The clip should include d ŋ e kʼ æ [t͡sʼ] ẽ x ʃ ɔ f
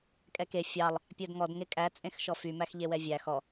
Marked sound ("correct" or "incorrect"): correct